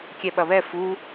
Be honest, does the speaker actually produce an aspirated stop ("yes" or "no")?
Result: no